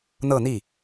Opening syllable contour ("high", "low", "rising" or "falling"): falling